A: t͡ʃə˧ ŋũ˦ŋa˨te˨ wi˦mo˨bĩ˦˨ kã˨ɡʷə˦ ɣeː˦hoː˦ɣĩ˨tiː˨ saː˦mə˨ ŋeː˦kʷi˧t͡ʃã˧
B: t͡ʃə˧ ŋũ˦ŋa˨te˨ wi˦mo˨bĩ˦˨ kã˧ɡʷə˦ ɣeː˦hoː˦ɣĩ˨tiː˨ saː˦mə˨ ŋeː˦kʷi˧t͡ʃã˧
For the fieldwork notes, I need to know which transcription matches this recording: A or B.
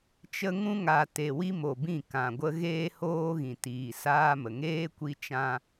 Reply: A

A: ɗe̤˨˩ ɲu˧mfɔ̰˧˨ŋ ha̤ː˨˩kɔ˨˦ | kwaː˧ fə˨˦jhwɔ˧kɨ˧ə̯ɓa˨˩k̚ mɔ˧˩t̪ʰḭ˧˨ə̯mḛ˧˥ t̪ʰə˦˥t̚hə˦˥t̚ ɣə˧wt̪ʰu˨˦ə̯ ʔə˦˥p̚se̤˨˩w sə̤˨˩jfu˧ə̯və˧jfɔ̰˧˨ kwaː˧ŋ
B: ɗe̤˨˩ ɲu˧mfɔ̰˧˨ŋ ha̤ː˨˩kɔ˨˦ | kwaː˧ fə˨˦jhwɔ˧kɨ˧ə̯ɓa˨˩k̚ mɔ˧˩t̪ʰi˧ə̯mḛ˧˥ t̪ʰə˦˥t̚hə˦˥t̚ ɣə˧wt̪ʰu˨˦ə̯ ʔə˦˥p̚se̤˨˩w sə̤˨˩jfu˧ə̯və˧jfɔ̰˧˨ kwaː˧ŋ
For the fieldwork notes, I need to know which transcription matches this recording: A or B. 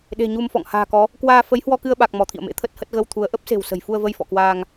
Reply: A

